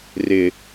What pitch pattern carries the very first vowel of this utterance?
low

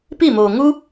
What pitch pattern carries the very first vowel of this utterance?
falling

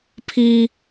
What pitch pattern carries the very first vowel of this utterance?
high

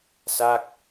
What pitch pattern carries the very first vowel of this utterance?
falling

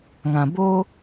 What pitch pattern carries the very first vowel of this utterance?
low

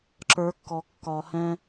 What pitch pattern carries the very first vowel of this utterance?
rising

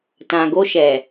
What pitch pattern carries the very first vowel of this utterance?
low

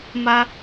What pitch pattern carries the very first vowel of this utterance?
high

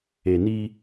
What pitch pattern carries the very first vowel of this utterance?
low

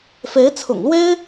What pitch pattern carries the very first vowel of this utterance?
rising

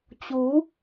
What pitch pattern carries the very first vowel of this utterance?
rising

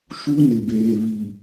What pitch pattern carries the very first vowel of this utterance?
high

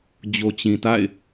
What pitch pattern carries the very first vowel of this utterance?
low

